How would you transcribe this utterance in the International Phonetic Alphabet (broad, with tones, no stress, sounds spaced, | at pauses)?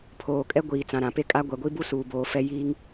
pʰ oː˨ kʼ ɛ˦ ɡʷ iː˨ t͡s ã˨ ɾ ã˨ p e˦ kʼ a˦ ɡʷ ɛ˨ ɡʷ i˦ b u˦ s uː˨ b oː˨ f ɛ˦ j iː˦ ŋ